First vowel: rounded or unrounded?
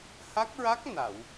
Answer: unrounded